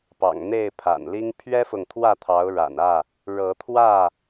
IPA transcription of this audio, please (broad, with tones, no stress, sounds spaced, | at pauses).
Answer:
p ɑ̰˨˩ ŋ n̪ e˥˨ ɪ̯ pʰ a̰˨˩ n l i˦ ŋ pʰ ɥ ɛ˦ f ʊ˨ ŋ t̪ʰ w ä˥˨ t̪ʰ ɑ˨˦ ʊ̯ ɻ a̰˨˩ n ä˥˨ | ɻ ɤ˨˦ t̪ʰ w ä˥˨